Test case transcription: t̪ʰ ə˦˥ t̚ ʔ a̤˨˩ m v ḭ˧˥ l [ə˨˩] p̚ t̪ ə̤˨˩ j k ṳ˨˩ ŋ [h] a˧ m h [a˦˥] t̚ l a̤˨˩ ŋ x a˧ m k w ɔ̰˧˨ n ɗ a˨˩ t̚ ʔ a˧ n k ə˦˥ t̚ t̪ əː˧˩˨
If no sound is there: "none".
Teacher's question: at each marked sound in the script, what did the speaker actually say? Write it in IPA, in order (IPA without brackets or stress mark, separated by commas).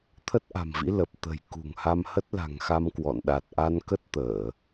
ə˨˩, h, ə˦˥